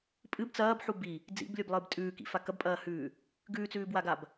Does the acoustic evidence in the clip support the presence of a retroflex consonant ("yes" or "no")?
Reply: no